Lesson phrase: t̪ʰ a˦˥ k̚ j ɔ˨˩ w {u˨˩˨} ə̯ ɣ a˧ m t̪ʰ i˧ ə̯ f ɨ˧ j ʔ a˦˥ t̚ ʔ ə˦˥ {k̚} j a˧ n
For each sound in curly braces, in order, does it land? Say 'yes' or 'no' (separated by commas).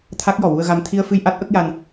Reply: no, yes